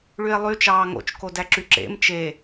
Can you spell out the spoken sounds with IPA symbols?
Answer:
ɭye̯lˠy t͡ʃɑːŋo̰t͡ʃko dæǁyǁḛm t͡ʃe

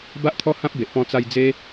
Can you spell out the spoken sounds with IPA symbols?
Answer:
ba˦ʔt̪ʰɔ˦hã˦p̚be˨ʔ pɔ̃˧t͡sa˧j d͡ze˧

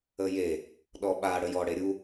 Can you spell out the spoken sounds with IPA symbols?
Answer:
əje | ɗɔɓa ɽəjɔ ɽeɾʲu

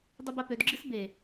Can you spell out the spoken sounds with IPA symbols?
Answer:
dˤɨbapødɡ͡ǁɨs be

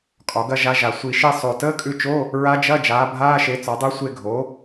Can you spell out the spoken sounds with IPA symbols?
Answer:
kʼɒ˩˥ɡɐ˥ ʒa˧˥ʒa˨˩ sʷi˨˩ʃi˦˨ sˤo˨˩təː˧˥˧kʼʉ˦˨t͡ʃo˧˥˧ | ɹa˧˥d͡ʒɐ˧˥˧ d͡ʒaː˩˥bʱaː˧˥˧ʃe˩˥ t͡sɒ˩˥dˤu˧˥sʷe˦˨ɡʱo˩˥

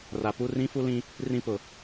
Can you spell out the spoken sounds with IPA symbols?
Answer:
ra˨pu˦ rĩ˦fu˦lĩ˦ | rĩ˦ pʊ˨

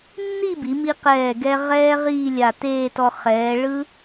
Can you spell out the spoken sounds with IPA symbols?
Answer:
nːi˥˧bi˩˧mi˧ qɛː˧˩ɡɛ˧ ʁɛː˧ ʁiː˥˧lʲa˧˩ teː˥˧tɔ˧ χɛː˩˧ ɭɯ˥

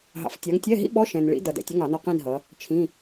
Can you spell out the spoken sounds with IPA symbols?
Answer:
ɦɑ̰˨f tʲɑ˨˦ŋtʲɛ˧˥˧ɦḭ˦˥ ɓɔ˧˥˧ ʃɛ̃˨nɭḭ˨˦ dʌ˨ dɛ̰˨tʲʌ˧˥˧ŋɑ˨˩˦nɔ˧˥˧ qĩ˥˧nɦʌ˨˦ | t͡ʃʰĩ˧˥˧

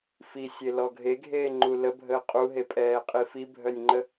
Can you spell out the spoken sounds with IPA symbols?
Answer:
fisʲelɔ ɡʱeɡʱeːŋ͡ǃu ləbʱəː qʼuɦepʼɛːqʼi fibʱœnʲŋ͡ǃə

